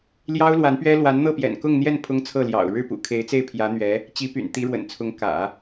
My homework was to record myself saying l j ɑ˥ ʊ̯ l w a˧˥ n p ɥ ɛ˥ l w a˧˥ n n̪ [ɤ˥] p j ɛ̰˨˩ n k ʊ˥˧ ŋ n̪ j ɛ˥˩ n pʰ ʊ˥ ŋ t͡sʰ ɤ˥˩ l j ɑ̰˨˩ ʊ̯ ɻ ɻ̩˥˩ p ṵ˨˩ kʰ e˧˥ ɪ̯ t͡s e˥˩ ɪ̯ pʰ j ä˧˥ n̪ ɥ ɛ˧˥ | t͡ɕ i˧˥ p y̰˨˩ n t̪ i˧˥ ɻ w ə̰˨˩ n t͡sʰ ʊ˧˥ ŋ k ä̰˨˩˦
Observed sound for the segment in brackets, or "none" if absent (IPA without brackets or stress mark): ɤ˥˩